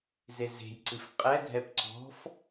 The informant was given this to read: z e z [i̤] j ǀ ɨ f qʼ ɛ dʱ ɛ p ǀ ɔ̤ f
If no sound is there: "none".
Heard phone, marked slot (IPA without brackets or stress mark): e̤